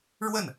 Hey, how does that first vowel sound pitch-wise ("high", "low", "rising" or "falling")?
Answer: falling